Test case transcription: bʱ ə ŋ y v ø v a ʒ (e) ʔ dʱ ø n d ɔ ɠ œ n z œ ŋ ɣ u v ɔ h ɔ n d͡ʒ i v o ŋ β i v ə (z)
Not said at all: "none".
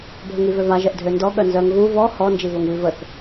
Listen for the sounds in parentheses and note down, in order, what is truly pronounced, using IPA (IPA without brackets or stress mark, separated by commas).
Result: ɛ, θ